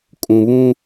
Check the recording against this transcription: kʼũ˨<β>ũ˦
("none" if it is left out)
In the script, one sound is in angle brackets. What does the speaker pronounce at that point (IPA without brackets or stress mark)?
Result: β